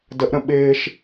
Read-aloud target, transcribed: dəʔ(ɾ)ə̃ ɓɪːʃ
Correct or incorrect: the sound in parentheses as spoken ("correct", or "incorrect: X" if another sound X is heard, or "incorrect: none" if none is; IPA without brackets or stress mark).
correct